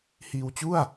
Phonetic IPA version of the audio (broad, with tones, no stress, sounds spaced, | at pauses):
h iː˧ w t͡ɕ u˥˩ a̯